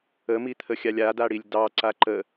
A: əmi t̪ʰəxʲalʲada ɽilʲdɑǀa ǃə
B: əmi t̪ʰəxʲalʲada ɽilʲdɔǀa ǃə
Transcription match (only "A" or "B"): A